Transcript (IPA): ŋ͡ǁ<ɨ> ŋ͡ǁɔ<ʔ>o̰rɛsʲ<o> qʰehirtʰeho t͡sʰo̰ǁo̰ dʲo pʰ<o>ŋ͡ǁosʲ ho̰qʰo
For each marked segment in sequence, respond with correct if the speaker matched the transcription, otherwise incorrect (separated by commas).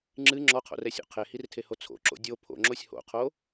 correct, incorrect, incorrect, incorrect